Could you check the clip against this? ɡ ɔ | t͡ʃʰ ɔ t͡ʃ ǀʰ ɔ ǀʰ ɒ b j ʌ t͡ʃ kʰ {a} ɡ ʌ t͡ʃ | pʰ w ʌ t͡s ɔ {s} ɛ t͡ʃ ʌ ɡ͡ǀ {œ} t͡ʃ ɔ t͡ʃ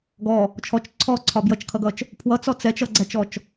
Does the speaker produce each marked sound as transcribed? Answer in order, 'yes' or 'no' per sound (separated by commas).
no, no, no